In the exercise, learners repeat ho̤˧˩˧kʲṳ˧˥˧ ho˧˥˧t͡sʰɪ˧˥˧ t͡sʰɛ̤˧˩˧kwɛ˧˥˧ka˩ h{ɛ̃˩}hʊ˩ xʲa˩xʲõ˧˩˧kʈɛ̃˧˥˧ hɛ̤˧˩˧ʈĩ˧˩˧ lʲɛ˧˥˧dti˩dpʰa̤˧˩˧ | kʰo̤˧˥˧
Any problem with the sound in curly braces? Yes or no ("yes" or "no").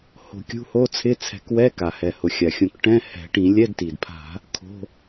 yes